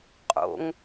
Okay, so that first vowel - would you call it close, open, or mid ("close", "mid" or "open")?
mid